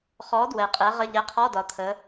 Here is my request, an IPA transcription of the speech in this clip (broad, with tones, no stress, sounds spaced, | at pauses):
χ ɔ˨˥ d w ɛ˨˩ qʼ ɛ˨˥ ʁ ə˧˥˧ ʎ ɛ˨˥ qʰ ɔ˧˥˧ d ɒ˩˧ t̪ʰ ə˩˧